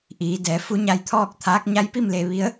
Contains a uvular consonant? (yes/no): no